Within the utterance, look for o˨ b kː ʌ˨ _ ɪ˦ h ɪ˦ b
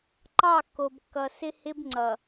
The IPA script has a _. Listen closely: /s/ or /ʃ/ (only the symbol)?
s